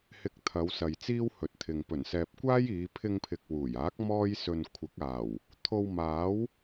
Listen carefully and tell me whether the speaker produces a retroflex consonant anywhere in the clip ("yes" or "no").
no